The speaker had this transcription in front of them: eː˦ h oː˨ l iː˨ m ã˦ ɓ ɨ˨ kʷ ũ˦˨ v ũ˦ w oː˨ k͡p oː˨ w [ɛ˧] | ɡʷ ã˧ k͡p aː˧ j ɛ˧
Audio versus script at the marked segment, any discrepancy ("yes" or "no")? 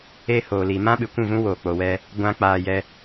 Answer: no